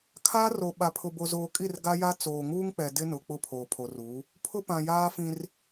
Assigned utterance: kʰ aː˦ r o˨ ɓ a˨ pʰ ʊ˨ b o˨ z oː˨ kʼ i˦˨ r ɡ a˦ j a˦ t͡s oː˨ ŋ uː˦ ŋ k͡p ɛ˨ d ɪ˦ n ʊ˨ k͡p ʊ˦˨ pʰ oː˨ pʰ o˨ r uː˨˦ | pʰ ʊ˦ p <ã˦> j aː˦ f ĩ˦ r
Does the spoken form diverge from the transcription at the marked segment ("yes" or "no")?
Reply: yes